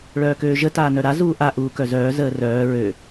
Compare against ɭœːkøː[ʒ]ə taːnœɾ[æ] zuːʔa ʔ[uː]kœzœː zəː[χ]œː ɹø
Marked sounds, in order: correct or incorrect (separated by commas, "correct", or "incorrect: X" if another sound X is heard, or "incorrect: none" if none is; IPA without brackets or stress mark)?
correct, incorrect: a, correct, incorrect: r